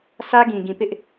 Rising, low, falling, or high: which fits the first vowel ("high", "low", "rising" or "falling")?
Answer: high